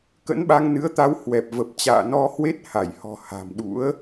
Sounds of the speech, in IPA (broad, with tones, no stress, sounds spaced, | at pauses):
k ə̰˧˥ n ɓ a˧ ŋ n ɨ˨˦ ə̯ t̪ a˨˦ w h w ɛ˨˩ p̚ v ə˨˩ p̚ t͡ɕ a̰ː˧˨ n ɔ˧ h w e˦˥ t̚ h a˧˩ j h ɔ̤˨˩ h a̤˨˩ m ɗ ṵ˧˥ ə̯